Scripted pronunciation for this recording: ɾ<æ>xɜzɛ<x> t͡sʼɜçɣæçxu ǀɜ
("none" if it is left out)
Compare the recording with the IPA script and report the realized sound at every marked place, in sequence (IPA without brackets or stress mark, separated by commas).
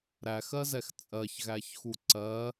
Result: æ, x